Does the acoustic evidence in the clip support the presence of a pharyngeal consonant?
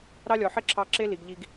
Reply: yes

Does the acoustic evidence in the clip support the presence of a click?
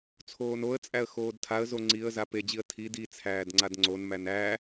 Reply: yes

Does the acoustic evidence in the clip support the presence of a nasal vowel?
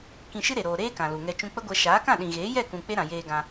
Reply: yes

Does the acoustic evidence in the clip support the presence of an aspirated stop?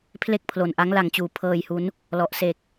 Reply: yes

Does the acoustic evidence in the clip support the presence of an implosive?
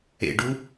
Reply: no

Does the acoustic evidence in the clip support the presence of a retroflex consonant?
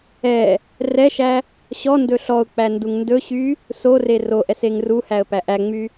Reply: no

